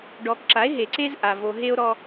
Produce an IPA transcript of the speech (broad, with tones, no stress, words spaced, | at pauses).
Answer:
ɖɔ˨kǁa˨˦e̯ ɦe˨ǀe˦z ʔa˨ vo˨ɦe˦o̯ɾɔ˦